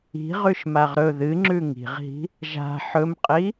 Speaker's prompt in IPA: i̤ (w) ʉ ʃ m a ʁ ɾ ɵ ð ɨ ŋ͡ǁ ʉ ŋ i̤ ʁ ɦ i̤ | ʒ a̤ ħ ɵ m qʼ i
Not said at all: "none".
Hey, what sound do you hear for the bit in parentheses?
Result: ʁ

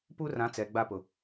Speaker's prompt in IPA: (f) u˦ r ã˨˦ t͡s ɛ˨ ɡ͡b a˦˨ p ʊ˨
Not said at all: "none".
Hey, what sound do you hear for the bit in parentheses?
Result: p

